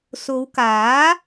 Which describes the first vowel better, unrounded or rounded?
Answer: rounded